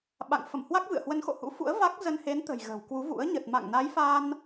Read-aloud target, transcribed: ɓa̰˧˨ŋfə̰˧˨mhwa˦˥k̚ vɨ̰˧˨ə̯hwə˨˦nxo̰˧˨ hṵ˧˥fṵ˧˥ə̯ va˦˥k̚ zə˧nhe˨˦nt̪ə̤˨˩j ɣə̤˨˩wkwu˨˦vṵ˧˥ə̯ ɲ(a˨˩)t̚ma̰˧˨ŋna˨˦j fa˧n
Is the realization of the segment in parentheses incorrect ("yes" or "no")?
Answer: yes